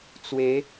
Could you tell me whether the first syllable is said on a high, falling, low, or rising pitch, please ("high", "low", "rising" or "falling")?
rising